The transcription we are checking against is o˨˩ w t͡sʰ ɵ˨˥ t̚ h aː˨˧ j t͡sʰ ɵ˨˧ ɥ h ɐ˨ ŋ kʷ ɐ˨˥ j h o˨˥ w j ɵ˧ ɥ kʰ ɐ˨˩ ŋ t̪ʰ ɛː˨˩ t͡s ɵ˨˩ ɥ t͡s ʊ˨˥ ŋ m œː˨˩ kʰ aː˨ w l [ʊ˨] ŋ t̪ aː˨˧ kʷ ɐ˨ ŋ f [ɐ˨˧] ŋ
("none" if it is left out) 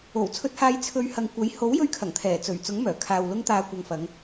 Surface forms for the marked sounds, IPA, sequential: ʊ˧, ɐ˨˧

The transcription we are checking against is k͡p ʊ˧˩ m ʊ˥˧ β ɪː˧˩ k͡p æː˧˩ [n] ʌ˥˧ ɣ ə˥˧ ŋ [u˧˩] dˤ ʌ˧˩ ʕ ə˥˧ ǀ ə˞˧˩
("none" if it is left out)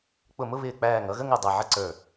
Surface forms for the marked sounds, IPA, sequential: ŋ, u˧˩

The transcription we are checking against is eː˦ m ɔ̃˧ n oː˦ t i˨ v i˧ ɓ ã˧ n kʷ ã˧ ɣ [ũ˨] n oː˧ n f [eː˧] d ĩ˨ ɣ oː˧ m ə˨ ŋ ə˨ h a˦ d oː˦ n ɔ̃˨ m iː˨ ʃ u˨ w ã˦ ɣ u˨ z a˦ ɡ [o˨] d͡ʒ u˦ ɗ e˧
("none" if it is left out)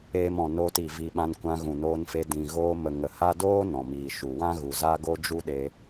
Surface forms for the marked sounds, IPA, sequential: ũ˨, e˧, o˦

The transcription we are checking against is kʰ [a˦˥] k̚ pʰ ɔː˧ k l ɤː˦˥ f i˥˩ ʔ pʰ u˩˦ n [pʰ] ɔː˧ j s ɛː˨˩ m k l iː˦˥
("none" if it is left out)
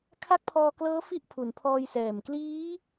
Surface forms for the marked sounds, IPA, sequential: a˦˥, pʰ

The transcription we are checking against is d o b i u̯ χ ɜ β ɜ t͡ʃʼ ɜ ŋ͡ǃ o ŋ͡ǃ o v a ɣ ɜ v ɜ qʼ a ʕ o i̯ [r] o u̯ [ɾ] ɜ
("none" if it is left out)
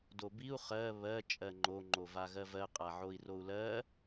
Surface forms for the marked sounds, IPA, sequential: r, l

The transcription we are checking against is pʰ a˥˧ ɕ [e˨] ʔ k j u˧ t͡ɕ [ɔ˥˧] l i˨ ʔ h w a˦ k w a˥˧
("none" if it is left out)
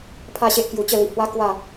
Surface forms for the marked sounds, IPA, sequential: e˦, ə˥˧

